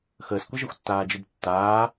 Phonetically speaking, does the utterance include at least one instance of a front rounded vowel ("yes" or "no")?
no